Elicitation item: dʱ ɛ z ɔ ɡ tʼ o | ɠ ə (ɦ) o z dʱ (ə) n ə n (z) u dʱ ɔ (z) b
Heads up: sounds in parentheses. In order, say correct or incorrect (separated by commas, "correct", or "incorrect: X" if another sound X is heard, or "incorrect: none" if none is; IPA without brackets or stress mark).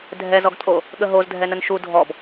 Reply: correct, incorrect: ɛ, incorrect: ʃ, incorrect: none